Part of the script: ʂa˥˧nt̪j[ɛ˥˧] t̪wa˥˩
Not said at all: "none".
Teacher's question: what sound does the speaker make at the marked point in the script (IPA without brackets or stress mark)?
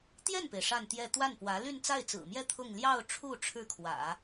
ɛ˥˧